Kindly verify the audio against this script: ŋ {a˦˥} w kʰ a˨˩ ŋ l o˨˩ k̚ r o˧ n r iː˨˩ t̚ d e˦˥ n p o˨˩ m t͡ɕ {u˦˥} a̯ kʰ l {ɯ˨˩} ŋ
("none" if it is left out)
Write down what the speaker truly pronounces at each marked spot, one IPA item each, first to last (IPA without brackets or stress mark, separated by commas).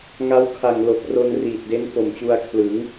a˦˥, u˧, ɯ˩˦